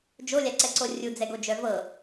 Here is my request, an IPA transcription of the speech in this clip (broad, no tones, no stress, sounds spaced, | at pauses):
d͡ʒ o lʲ a ǀ ɛ ǀ o rʲ u d͡z ɛ ɡ o d͡ʒ œ v ɤ